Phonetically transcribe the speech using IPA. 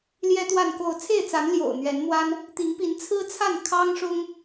l j ɛ˦ t̪ w a˥˨ n k o˥˨ ʊ̯ t͡sʰ e˥˨ ɪ̯ t͡s a˨˦ n l j o̰˨˩ ʊ̯ n̪ ɥ ɛ˨˦ n m w a˦ n | t̪ i˨˦ ŋ p i˨˦ n t͡sʰ ɹ̩˦ t͡sʰ a˥˨ n kʰ ɑ˦ ŋ ʂ ʊ˦ ŋ

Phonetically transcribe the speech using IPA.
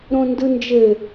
ɾ õ n d ɯ n d͡ʒ ɘ

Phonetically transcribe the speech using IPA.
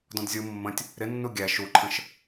d ɔ̃ d zʲ u mː ə̃ tʲ | ɾ ɪ nː u ɡʲ æ ʃ u ǃʰ ə̃ ʃ

